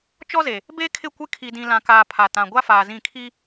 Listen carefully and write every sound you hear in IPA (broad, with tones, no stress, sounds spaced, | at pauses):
t͡ʃ ɔ˦ z e˨ | b e˦ kʰ ɪ˦˨ kʷ ɪ˦ kʰ i˨ d ĩ˨ l ã˨ k aː˨ pʰ a˨ t ã˨ ɡʷ a˦ f aː˨ z ĩ˦˨ kʰ i˦